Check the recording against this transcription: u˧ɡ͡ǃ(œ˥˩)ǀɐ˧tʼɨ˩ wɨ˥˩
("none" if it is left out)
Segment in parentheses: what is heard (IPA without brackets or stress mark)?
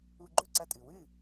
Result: ɵ˥˩